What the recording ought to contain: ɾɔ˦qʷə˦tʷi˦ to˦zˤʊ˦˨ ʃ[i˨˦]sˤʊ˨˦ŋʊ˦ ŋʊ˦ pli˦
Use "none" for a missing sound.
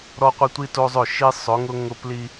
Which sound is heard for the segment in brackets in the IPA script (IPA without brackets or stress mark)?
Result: i˦